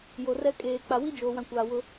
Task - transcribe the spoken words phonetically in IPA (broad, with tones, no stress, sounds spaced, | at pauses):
j o˨ r ɛ˦ kʼ eː˨ k͡p a˨ w i˦ d͡ʒ oː˨ w ã˨ kʷ aː˨ w ʊ˦